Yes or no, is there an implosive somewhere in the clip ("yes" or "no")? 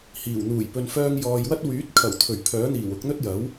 no